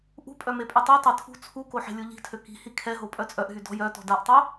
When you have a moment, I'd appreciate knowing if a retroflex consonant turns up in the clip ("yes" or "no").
no